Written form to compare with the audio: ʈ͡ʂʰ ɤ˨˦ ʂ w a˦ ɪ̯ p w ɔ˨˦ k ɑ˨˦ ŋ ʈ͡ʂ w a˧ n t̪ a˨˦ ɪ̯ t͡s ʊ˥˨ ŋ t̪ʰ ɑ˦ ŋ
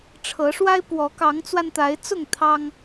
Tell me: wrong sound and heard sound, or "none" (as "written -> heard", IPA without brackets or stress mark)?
ʈ͡ʂ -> t͡s